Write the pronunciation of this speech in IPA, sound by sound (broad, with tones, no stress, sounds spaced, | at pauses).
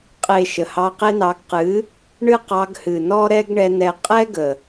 qʼ e˨ ʃ ə˨ h ɑ˧ q e˦ n ɑ˧ ɡ q ɨ˨˦ | ɳ ɨ˦ q ɑ˧ ɡ h ɨ˨ n ɔ˦ ɾ ɛ˦ ɡ ɳ ɛ˧ n ɛ˨ qʼ ɛ˦ ɡ ə˨